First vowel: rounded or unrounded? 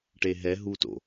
unrounded